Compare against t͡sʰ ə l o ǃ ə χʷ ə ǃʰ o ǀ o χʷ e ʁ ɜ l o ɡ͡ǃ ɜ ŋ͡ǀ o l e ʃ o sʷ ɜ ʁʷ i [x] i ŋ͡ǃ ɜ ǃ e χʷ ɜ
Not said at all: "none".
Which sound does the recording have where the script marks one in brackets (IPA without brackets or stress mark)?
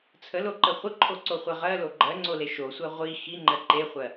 x